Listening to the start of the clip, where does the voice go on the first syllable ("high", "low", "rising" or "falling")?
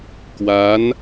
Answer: rising